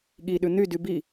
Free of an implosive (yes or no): no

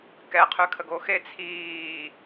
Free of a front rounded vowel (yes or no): no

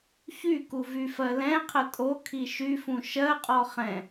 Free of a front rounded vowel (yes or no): no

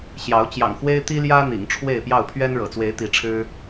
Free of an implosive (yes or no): yes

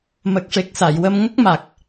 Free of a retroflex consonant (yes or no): no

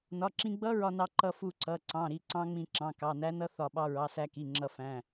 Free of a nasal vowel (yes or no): no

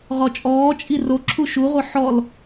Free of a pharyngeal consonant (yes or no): no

